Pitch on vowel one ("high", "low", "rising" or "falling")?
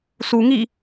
low